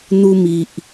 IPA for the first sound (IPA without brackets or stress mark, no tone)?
n̪